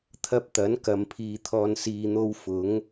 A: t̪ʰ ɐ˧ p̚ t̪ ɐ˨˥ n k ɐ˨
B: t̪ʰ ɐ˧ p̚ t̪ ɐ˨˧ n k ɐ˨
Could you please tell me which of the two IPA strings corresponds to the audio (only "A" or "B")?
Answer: A